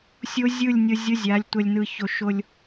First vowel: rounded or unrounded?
rounded